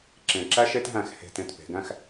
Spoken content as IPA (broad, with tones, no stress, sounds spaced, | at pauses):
ǁ ẽ˨˩ ǁ æ˥ ʃ e˥ t ɦ æ̃˥˩ x h e̤˥˩ t ẽ˥˩ t p e̤˩˧ ɡ æ̃˥˧ x